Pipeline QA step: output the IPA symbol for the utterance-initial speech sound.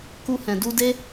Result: k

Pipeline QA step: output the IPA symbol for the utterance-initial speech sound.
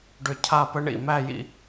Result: ɖ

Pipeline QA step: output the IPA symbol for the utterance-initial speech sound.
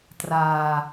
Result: t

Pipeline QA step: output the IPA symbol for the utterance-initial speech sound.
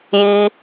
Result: j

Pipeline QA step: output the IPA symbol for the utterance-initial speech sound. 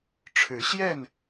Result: ʈ͡ʂʰ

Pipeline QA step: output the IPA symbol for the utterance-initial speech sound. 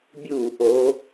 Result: bʲ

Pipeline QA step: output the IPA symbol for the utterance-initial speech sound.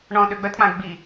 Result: ɳ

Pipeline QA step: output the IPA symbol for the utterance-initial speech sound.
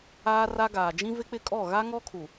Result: aː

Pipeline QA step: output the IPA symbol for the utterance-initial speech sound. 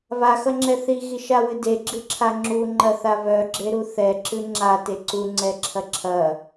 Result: β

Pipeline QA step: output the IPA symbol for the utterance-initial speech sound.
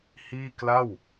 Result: h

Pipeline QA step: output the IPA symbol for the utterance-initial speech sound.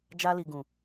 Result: d͡ʒ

